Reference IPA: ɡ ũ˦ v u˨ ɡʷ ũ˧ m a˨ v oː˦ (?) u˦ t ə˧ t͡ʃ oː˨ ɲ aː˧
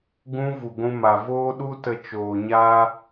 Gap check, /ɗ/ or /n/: ɗ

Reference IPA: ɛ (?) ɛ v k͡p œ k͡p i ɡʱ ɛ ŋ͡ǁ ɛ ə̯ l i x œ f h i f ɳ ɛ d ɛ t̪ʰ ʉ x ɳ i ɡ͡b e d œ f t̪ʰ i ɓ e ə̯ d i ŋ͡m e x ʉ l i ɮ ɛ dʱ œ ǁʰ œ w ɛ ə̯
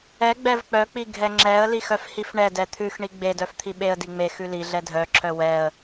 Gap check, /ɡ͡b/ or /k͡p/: ɡ͡b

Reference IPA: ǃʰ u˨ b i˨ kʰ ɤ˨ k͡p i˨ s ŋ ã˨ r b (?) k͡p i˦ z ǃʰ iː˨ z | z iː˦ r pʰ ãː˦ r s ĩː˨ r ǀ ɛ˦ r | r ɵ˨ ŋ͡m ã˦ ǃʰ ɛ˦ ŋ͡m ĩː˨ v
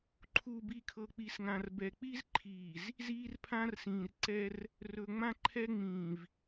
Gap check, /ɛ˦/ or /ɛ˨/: ɛ˨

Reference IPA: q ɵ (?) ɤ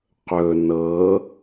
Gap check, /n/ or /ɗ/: n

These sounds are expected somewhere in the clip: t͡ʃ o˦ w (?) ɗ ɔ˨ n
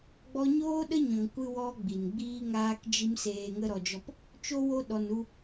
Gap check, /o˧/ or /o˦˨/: o˧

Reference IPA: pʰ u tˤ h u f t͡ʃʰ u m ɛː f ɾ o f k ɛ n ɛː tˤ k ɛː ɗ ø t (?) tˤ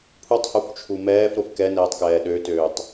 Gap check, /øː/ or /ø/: øː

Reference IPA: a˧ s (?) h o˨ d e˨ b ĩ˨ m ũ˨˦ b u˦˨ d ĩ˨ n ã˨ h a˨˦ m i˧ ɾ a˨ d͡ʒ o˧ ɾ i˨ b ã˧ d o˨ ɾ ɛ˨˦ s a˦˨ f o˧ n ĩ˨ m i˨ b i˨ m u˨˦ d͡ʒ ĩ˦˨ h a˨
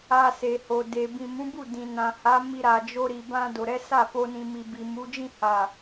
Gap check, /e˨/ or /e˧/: e˨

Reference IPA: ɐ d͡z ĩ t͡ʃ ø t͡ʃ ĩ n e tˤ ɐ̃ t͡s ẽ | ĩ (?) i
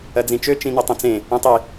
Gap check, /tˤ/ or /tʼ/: tˤ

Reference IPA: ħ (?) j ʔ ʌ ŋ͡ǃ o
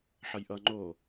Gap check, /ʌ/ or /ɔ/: ʌ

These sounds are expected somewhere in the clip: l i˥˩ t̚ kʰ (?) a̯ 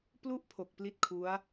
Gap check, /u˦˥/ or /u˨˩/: u˦˥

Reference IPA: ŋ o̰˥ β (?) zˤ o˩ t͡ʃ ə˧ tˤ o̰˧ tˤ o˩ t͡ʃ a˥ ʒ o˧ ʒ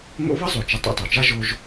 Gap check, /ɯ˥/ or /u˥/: ɯ˥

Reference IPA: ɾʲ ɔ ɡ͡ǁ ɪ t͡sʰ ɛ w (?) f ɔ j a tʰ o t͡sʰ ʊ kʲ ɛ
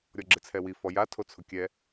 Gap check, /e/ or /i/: i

